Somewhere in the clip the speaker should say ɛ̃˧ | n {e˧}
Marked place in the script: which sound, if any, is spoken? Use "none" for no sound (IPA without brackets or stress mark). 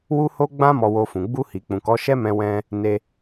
e˧